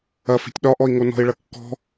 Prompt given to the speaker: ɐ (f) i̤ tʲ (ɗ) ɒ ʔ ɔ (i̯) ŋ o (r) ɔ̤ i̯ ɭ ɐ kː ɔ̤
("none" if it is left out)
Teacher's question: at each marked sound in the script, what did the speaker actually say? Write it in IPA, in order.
f, ɗ, i̯, n

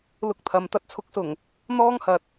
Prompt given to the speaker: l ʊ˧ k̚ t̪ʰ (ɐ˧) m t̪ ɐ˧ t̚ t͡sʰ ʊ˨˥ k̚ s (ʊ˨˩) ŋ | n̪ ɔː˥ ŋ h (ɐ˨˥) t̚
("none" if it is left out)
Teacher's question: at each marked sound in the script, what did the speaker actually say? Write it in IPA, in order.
ɐ˨, ʊ˨˩, ɐ˨

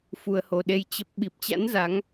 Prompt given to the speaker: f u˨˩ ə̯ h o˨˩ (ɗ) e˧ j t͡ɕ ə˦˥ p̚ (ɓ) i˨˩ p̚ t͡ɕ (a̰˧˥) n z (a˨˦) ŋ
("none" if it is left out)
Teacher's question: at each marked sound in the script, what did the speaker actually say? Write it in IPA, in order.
ɗ, ɓ, a̰˧˥, a˨˦

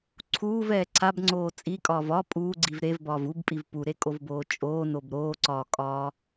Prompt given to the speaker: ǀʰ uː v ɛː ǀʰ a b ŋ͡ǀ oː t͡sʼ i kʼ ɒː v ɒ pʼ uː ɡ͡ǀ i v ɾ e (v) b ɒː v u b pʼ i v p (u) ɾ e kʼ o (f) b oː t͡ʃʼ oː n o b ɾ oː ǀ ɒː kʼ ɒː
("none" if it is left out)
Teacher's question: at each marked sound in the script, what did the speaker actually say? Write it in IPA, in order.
v, u, v

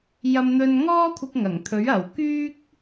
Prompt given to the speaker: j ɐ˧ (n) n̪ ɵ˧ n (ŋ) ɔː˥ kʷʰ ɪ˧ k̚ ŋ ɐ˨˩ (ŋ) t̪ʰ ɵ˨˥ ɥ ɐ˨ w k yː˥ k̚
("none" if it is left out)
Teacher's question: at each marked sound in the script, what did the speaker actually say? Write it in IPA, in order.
m, ŋ, ŋ

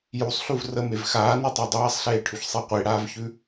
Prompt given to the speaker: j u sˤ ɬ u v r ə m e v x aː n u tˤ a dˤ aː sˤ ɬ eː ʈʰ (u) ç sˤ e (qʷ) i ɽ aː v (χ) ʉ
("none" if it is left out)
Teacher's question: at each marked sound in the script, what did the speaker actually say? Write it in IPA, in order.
ʉ, qʷ, ç

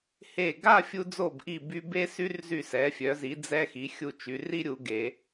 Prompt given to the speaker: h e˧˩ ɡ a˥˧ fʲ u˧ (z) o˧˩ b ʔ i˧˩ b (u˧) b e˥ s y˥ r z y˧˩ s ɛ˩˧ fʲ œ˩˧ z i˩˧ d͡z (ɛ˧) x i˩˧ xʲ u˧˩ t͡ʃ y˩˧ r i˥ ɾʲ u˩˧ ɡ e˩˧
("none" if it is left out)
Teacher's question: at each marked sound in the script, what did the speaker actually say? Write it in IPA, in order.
d͡z, y˧, ɛ˧

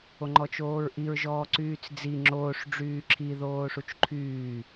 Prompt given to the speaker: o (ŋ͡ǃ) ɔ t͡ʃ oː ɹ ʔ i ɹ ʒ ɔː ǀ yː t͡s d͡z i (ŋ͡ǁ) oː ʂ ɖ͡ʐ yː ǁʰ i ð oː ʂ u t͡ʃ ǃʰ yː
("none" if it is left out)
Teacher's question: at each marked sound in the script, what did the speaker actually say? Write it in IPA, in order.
ŋ͡ǃ, ŋ͡ǁ

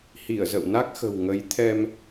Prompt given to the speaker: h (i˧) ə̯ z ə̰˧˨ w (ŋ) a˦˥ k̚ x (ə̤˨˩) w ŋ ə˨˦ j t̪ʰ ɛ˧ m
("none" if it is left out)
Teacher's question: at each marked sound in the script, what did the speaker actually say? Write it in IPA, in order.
i˧˩, n, ə̤˨˩

